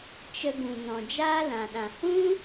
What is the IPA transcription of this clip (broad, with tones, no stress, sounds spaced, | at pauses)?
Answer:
t͡ʃ ə˧ ɡ ũ˨ n ɔ̃˨ d͡ʒ aː˦ l ã˨ ɗ ã˨ h ũ˦